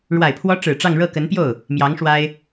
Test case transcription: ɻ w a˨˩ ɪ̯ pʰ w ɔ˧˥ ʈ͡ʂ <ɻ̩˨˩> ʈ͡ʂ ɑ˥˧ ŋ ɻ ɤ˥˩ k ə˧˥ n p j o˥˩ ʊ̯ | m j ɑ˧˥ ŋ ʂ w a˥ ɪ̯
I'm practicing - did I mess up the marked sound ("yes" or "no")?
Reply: no